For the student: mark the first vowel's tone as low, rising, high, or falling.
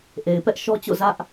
low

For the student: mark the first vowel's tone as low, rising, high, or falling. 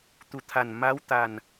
low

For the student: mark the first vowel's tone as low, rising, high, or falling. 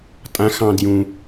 rising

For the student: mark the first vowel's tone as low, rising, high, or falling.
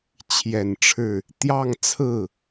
low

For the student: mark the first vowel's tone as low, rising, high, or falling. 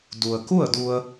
low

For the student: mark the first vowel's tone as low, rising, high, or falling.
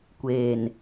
low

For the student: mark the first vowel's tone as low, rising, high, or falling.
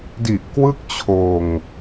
low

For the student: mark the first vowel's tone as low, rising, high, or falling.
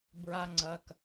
high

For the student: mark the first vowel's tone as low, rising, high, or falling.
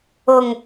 low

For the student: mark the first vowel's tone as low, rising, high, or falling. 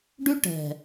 high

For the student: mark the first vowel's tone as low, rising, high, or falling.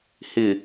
low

